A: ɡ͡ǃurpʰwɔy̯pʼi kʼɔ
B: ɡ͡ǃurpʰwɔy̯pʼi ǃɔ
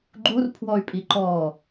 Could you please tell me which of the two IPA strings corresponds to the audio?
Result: B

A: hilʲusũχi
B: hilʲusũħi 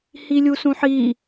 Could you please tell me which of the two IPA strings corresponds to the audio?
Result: B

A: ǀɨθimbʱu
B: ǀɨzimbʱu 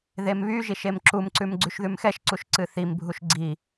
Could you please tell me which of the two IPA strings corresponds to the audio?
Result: A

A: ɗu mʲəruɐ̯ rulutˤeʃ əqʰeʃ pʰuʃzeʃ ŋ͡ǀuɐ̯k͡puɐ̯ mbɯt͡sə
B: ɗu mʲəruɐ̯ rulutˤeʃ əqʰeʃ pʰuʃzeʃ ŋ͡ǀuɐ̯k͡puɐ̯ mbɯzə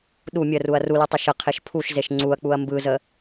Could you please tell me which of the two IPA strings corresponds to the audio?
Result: B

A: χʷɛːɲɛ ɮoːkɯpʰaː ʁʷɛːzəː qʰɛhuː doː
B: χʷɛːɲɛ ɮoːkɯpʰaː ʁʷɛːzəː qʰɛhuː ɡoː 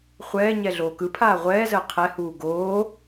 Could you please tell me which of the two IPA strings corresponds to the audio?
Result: B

